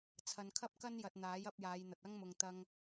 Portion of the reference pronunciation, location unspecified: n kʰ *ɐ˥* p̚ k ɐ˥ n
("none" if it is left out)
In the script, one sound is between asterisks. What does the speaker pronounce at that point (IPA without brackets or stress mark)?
ɐ˥